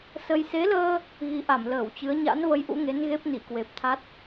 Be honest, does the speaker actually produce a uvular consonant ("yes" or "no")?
no